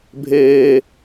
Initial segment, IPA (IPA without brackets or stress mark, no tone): bʱ